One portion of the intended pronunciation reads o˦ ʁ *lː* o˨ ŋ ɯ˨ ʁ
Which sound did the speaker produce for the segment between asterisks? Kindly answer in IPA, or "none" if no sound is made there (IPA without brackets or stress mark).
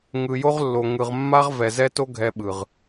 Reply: lː